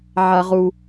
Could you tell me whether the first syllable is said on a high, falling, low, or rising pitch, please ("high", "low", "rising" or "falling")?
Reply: low